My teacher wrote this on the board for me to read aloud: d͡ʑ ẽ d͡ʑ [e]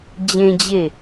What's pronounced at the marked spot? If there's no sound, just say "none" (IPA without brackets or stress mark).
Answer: e